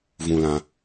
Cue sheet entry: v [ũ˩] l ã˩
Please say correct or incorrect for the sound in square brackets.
correct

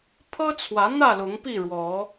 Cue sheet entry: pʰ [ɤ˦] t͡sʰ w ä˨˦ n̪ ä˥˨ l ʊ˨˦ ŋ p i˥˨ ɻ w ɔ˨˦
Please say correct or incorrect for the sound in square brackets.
correct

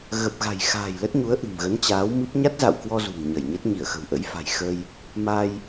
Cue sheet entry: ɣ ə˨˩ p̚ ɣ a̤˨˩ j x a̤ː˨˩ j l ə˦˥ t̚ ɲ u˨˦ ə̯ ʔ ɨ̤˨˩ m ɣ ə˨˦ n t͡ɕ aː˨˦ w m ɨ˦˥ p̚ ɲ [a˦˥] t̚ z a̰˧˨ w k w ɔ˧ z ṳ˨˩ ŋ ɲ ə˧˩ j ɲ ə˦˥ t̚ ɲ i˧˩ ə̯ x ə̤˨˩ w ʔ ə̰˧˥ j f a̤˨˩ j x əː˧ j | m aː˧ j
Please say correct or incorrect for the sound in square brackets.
correct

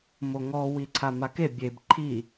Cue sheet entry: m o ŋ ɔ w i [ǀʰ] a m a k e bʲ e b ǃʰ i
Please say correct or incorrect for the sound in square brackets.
correct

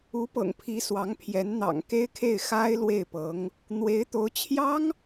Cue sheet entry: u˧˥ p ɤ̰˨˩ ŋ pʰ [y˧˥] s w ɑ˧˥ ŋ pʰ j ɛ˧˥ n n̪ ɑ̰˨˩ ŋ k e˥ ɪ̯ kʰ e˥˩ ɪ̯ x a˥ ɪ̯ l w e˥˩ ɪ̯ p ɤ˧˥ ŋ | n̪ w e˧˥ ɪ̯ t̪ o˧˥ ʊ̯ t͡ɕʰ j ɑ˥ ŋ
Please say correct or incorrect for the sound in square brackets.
incorrect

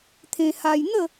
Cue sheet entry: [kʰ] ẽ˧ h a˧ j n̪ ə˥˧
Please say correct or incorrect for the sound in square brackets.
incorrect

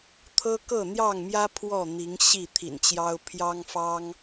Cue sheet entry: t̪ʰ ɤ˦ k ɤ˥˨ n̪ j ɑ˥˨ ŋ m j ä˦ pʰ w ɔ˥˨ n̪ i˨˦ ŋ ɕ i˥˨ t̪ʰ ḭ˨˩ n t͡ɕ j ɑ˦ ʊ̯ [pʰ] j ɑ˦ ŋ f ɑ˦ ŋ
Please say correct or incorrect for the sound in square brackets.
correct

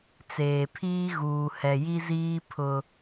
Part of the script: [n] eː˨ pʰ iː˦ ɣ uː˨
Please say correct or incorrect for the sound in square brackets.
incorrect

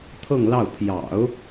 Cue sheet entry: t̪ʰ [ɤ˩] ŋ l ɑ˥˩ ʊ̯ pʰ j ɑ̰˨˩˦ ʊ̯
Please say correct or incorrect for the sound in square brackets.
incorrect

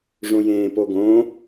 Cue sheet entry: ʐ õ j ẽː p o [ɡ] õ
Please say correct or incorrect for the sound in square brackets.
correct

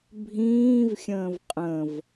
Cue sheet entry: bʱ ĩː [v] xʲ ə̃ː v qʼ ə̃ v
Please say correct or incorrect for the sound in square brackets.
correct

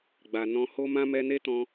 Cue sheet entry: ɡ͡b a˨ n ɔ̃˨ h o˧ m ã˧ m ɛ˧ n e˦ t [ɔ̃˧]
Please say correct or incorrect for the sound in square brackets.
correct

